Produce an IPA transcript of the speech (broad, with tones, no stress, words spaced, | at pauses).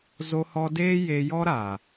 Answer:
zo˧hɔ˧ deː˦je˧ jɔ˦ɾa˨